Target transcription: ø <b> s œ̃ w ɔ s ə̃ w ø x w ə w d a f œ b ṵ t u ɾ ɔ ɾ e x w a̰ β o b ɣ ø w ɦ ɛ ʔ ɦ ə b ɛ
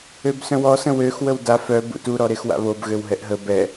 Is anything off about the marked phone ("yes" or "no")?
no